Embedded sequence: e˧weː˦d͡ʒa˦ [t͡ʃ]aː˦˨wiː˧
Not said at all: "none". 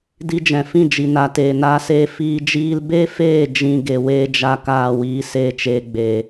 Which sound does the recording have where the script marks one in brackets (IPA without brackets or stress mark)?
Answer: k